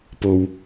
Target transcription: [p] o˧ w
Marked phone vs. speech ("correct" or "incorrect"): correct